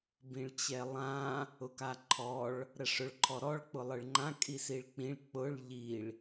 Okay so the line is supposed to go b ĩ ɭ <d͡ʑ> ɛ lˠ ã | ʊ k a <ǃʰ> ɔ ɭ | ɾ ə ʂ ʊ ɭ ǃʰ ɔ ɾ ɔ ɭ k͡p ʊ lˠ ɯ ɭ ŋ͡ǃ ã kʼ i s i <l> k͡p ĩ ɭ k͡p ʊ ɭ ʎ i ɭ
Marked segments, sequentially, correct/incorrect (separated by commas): incorrect, correct, incorrect